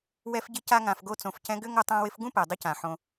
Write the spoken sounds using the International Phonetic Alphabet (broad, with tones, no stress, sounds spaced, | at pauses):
w ɛ˧ f ɟ ɪ˧ c a˧ ŋ ã˨ f ɡ o˧ t͡s õ˨ f c ɛ̃˧ ɡ ʏ˦ ŋ o˦ tˤ ã˦ w ɪ˦ f ɡ ũ˦ p ɛ˨ dˤ ʏ˧ c ã˨ ħ õ˧